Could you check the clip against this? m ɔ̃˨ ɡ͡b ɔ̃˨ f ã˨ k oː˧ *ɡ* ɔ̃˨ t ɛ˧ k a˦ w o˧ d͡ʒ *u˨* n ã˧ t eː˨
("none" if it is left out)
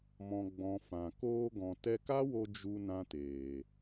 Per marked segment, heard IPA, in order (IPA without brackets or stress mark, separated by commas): ɡ, u˧